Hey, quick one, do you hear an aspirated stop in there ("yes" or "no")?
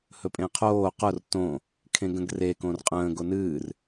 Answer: yes